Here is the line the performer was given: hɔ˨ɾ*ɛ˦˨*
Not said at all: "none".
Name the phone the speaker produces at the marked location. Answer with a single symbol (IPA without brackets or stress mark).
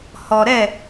ɛ˦˨